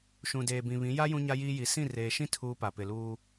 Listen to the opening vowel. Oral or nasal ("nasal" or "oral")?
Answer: nasal